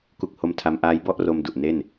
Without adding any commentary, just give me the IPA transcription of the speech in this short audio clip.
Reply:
k u˦˥ k̚ h o˦˥ m tʰ a˦˥ m ʔ aː˦˥ j b ɔ˥˩ ʔ r o˧ m d u˨˩ ʔ n e˥˩ n

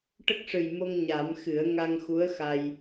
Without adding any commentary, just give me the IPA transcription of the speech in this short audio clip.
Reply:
ʈ ə˦˥ k̚ ʂ ɨ˨˩ j m o˧ ŋ ɲ a˨˩˦ m x ɨ˨˩˦ ə̯ ŋ a˧ ŋ x u˧˥ ə̯ x a˧ j

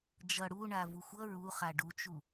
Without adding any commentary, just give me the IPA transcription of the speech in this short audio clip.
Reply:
d͡ʒ ʌ ɽ u ɳ a v u xʷ ʌ ɹ u χ a ɖ u t͡ʃ u

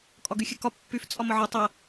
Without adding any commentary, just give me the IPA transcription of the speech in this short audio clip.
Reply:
kʼ ɒ ɡ y xʲ ɨ k ɒ pː y f t͡sʼ ɒ m ə ʕ ɒ tˤ ɐ

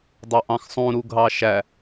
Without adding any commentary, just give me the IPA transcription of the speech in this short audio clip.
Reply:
dˤ o ʔ ɑ̃ x sˤ ũ ɾ u ɡʱ ɑ ʃ æ

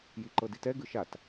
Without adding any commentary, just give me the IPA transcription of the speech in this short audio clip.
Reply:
j i ǃ ɤ d i t ɛ ɡ ɯ ʃ a t

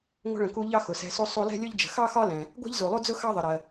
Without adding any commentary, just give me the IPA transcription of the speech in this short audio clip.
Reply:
ŋʷ ə̤˧ ɭ ə̃˩ k u˧ ʎ ɑ˥ x ʊ˩ s ɛ̤˧ s u˥ sˤ u˧ l ɛ̤˥ lʲ ʊ˥ ʎ d͡ʒ ə̤˩ x ɑ˥ x ɒ˥ l ɛ̃˩ | ɡʷ ɛ̤˥ ʎ z u˩ lˠ u˥ d͡z ʊ˥ x ɑ˥ ðˤ ə˩ ɾ ɜ˩

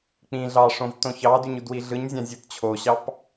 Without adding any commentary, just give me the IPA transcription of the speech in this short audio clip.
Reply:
k͡p ĩ ɮ ɑ ʂ õ v t õ ç ɑ d y ɲ u d w i ɮ ɯ ɲ zʲ ɑ̃ zʲ ɯ t t͡ɕʰ o ɕ ɑ p

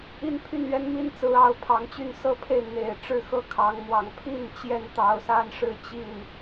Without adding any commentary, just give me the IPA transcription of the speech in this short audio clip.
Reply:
i˦ n pʰ y˥˨ n ɥ ɛ˦ n m i˥˨ n t͡s ɹ̩˨˦ ɑ˨˦ ʊ̯ pʰ ɑ˨˦ ŋ t͡ɕ y˥˨ n s ɤ˦ pʰ e˥˨ ɪ̯ n̪ e˨˩ ɪ̯ ʈ͡ʂ ɻ̩˥˨ x ɤ˥˨ kʰ ɑ˨˦ ŋ m w ɑ˨˦ ŋ pʰ i˥˨ n t͡ɕ j ɛ˥˨ n t̪ ɑ˨˩ ʊ̯ s a˦ n ʂ ɻ̩˥˨ t͡ɕ i˥˨ n

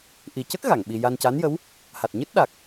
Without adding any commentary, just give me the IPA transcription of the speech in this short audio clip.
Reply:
ʔ i˨˩ c ə˦˥ k̚ ɣ a˨˩˨ ŋ ɓ i˧ j a˧ n c a˧˥ n j ə˧˥ w | h a˨˩ t̚ ɲ ɨ˦˥ t̚ ɗ a˨˩ k̚

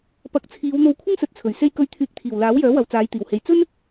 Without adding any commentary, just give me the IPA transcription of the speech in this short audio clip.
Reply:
p ɐ˨˥ k̚ t͡sʰ iː˨˧ w n̪ o˧ w kʷʰ ɪ˥ ŋ s ɵ˨ t̚ t͡sʰ ɵ˨˩ ɥ s e˧ j k ɵ˨˧ ɥ t̪ʰ yː˨˥ k̚ t̪ʰ iː˨˩ w l aː˨˥ w j œː˨˥ w ɐ˨ w t͡s aː˨˧ j t̪ iː˨˩ w h e˨ j t͡s ɵ˥ n

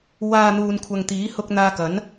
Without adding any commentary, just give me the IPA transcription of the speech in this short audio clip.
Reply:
w aː˨ n̪ uː˧ n kʷʰ ɐ˨ ŋ t̪ iː˨˥ h ʊ˧ k̚ n̪ aː˧ k ɐ˨˥ n

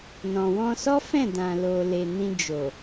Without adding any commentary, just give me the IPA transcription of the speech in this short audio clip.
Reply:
n ɔ̃˨ w ɔ̃˧ s ɔ˦ f ɛ̃˦˨ d ã˨ l o˨ l e˨ n ĩ˧ d͡ʒ o˨

